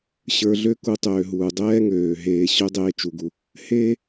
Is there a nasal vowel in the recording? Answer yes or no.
no